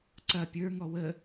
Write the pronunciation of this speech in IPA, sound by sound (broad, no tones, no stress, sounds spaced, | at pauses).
ǀ ɐ pʲ ə˞ ŋ ɔ w ə